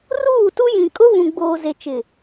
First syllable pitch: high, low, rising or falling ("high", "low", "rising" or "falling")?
falling